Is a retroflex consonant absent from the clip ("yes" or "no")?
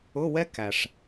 no